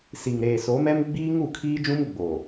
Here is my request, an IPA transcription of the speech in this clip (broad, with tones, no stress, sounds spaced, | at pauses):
s i˨ ŋ ɾ eː˨ s o˨˦ m ɛ˦ m ɡ͡b iː˦ ŋ u˦˨ kʰ iː˦ d͡ʒ ũ˦ m ɡ͡b o˨